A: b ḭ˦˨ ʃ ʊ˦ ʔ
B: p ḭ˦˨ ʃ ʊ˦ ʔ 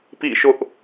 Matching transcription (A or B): B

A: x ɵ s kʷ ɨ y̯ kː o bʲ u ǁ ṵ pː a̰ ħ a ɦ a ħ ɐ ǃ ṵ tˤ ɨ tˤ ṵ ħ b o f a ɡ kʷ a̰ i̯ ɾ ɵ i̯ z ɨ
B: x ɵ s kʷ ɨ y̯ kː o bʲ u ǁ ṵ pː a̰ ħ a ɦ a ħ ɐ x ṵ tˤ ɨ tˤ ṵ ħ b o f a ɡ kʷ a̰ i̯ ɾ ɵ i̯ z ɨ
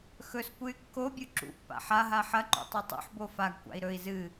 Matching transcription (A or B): A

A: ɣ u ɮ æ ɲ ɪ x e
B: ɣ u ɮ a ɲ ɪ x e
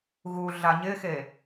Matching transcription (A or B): B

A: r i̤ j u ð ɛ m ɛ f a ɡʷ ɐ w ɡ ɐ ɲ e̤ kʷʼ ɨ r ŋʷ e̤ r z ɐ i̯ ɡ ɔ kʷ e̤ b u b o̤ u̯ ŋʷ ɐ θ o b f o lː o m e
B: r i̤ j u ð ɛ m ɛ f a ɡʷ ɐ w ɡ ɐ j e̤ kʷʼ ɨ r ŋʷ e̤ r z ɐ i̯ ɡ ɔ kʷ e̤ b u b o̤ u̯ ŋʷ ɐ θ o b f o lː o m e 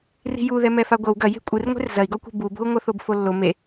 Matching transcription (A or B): B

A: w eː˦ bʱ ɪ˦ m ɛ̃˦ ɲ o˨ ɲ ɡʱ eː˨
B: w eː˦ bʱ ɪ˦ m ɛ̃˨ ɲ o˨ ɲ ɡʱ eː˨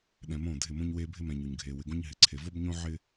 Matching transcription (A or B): B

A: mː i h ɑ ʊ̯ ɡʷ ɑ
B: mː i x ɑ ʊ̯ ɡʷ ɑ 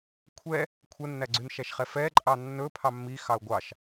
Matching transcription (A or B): B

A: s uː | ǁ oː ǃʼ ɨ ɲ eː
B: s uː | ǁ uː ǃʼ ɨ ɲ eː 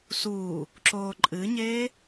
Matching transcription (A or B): A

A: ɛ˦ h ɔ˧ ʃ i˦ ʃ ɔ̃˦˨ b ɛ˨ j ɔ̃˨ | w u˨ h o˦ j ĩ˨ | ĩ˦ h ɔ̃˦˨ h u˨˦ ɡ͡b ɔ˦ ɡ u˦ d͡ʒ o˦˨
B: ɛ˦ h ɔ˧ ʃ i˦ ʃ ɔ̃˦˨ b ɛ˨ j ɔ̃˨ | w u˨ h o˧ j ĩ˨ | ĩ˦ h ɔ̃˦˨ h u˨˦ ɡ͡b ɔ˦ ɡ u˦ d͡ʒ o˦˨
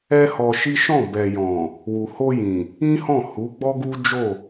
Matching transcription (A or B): B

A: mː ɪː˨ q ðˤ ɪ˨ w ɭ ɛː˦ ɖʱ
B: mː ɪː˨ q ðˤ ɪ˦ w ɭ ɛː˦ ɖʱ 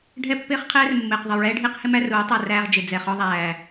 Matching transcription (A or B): A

